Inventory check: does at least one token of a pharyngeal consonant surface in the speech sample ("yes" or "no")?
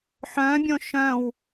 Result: yes